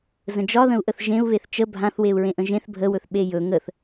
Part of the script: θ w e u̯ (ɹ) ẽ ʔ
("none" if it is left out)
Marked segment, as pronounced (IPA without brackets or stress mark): ɹ